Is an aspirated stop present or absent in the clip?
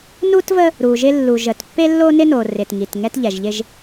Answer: absent